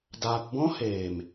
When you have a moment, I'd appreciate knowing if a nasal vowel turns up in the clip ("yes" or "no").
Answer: yes